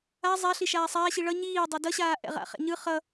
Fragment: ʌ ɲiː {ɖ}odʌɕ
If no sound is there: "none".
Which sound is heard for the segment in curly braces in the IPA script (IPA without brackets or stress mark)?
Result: dˤ